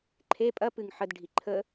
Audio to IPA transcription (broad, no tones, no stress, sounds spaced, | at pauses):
ǃʰ e pʼ ɐ p ɨ ŋ ħ ə d ɖʱ i ǃʰ ə